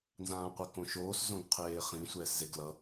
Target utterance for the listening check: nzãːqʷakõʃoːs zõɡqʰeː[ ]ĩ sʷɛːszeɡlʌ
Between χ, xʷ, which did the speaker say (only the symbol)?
χ